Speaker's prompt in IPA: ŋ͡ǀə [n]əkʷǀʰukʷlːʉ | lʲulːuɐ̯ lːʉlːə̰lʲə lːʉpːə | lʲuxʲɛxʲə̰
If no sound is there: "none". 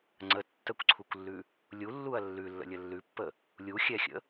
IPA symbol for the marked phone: tː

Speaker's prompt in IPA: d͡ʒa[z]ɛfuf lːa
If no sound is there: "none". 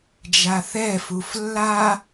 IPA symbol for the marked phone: θ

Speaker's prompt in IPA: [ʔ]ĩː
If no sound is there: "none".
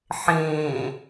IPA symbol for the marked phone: ħ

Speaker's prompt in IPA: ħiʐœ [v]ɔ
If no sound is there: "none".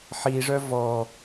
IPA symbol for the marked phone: v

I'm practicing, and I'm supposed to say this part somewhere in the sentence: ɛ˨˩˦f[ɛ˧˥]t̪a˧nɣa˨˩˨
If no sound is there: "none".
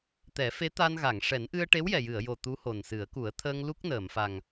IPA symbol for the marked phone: e˧˥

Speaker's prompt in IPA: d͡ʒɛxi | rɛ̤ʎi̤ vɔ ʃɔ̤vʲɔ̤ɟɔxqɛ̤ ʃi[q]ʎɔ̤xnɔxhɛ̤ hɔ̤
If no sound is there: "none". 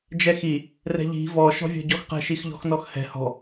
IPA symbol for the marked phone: x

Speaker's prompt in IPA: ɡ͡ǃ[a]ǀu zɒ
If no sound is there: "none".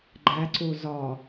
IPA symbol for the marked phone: æ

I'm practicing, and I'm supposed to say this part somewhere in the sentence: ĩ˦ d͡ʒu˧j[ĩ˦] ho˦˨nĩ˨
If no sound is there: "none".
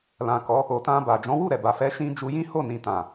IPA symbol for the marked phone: ĩ˦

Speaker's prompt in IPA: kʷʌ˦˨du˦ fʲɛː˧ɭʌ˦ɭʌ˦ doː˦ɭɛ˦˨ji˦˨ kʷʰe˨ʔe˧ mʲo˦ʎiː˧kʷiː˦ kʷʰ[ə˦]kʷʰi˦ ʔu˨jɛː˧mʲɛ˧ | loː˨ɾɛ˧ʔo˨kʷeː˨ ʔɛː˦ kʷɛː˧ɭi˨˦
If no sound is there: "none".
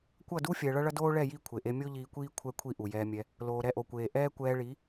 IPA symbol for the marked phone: ɛ˦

